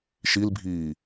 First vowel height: high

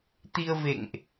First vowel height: high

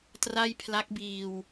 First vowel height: low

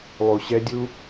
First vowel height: high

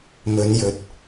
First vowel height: mid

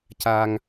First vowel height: low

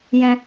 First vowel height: mid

